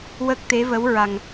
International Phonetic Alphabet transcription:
w ə˦˥ k̚ t̪ e˧˥ v ə˧˥ w ɹ a˨˩ ŋ

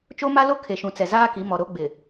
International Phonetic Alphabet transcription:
t͡ʃ o˦ m a˦ l o˦ kʰ e˨ ʃ ũ˨ t͡s ɛ˨ z aː˦ k i˨˦ m ɔ˨ ɾ o˦ ɡ͡b ɪ˨

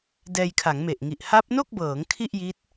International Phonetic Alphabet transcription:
d ɛː˧ j kʰ a˩˦ ŋ m e˨˩ ʔ ŋ i˨˩ ʔ h a˦˥ p̚ n o˥˩ k̚ b ɤː˩˦ ŋ kʰ i˥˩ ʔ j i˦˥ t̚

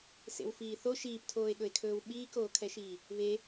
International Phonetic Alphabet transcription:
s ḛ w f iː θ o ʃ iː p tʰ oː e̯ ɠ ɵ e̯ kʰ ɵː w ɓ iː k oː kʰ ɛ ʃ iː | β e

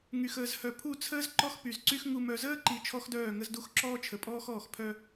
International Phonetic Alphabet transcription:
ŋ y˨ x əː˨ z h œ˨ pʰ u˦˨ t͡sʰ əː˦ z ǃ ɔ˦ x p y˨ z ǀ y˦ x ŋ u˨ m œ˨ z əː˦ ǃ i˨ t͡ʃʰ ɔ˦ x d œː˦˨ ŋ ə˦ z d u˦ x ǁ ɔː˦ t͡ʃʰ ə˨ pʼ ɔː˦ x ɔː˦˨ x pʰ œ˦

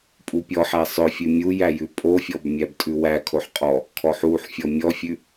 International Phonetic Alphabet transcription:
pʼ u pʲ ɔ ħ æ sˤ œ fʲ ʉ mʲ u j æ j ʉ pʼ o fʲ ɔ b mʲ æ b tʼ ʉ w æ kʰ o ħ qʼ ɔ | kʰ ɔ ħ u ħ fʲ ɔ mʲ ɔ fʲ ʉ

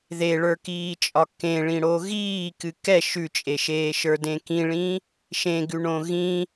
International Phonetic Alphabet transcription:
ð e ɭ ə˞ k iː t͡ʃʼ ɒ k ẽ ɭ ĩ ɽ o ɣ iː k ɨ k ɛ ʃ ʉ t͡ʃʼ e ʃ eː ʃ ə˞ d ẽ k ĩ ɭ ĩ | ʃ ẽ ɡ ʉ ɳ õ ɣ ĩ

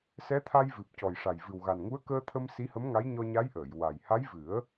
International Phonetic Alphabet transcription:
s ɛ˧˥ t̪ʰ a˧ j v ɨ˨˩ p̚ c ɔ˨˩ j ʂ a˨˩ j v ɨ˨˩ w ɣ a˨˩ n ŋ u˧˥ ə̯ k əː˧ t̪ʰ ə˧ m s i˧˥ h ə˧˥ m ŋ a˧˥ j ɲ ɔ˧ ɲ a˧˥ j ʔ əː˨˩˨ j w a˨˩ j h a˧˥ j v ɨ˨˩˦ ə̯

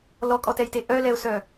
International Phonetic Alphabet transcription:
l ɔ kʼ ɔ t ɛ j t e ʔ œ l ɛ ʊ̯ s œ

